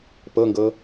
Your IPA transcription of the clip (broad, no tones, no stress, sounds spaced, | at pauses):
p ɤ ŋ ɡ ɤ